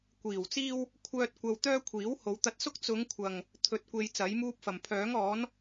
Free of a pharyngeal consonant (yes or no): yes